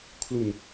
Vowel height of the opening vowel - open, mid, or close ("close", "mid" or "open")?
close